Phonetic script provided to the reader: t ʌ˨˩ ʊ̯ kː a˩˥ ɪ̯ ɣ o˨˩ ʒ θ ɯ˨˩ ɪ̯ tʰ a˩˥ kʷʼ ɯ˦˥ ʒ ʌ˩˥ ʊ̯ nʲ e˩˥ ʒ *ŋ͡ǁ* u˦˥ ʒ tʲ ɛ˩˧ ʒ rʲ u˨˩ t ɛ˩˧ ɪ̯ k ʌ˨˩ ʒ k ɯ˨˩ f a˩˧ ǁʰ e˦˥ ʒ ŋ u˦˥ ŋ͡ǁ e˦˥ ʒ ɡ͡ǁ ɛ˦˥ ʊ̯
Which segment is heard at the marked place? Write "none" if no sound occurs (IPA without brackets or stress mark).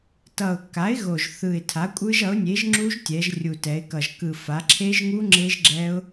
ŋ͡ǁ